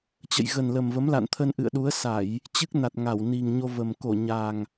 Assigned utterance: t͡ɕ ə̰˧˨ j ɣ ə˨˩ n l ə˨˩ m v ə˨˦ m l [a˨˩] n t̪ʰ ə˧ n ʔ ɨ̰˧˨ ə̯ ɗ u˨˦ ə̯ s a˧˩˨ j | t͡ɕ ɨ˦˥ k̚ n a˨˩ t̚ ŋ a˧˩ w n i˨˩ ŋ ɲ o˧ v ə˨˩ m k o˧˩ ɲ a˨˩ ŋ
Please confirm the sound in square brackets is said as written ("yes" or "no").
no